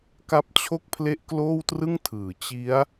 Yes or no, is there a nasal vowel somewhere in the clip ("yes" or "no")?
no